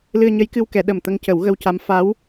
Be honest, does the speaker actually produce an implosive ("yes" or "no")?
yes